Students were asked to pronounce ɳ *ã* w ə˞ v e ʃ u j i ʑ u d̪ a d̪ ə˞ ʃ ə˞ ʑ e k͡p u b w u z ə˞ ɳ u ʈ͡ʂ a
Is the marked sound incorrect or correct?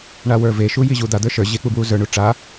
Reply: incorrect